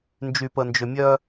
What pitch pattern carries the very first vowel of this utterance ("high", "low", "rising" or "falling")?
low